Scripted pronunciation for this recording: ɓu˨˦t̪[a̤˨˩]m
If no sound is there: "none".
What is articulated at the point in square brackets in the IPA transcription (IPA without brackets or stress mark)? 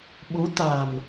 a̤˨˩